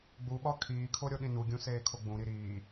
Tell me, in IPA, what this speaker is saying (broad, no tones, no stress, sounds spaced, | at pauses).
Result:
ɡ͡b u ɓ ɒ kʰ iː kʰ o ɾʲ o ɗ ĩ n u ɡʲ ũ s eː kʰ o ɡ͡b ũ ɾ i ɾ iː